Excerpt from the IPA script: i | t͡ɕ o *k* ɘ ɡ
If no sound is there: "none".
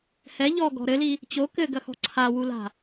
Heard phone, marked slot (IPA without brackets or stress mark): k